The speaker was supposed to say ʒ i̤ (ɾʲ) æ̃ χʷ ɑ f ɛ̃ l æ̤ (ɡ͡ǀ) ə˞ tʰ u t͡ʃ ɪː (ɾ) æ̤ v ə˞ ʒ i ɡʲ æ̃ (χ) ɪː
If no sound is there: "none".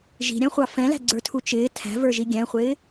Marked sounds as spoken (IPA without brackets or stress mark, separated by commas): ɾʲ, ɡ͡ǀ, tʰ, χʷ